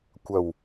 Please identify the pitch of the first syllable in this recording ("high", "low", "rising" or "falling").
low